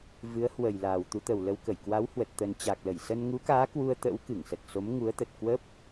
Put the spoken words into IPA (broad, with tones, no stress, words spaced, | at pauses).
vɨ˨˦ə̯ hwə˨˩j laː˨˩wt̪u˨˦t̪ə˨˩wlə˧w kə˧˩jkwa˨˦whwə˨˩t̚ t̪ə˨˩nt͡ɕa˨˩k̚lə˧˩jsə˧n ŋu˨˦kaː˨˦ kwu˧ə̯t̪ə̰˧˥w kɨ˧˩ŋsə˨˩t̚so˨˦m ŋu˨˦ə̯t̪ə˨˩t̚kwə˦˥p̚